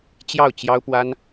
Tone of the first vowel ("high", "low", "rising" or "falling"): falling